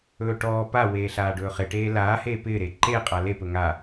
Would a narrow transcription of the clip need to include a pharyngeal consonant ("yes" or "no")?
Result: no